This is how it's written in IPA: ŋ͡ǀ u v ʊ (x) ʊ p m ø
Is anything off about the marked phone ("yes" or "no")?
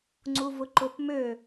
yes